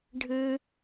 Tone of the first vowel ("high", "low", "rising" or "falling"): high